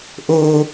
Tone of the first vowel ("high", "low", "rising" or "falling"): high